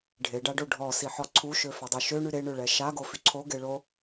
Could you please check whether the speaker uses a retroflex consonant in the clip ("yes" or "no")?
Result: yes